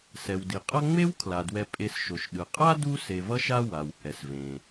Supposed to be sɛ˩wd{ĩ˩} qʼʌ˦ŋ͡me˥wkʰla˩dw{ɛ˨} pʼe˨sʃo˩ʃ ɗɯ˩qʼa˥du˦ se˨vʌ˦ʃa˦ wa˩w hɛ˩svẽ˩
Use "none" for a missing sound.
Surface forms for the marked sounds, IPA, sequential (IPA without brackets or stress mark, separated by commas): i˩, ɛ˨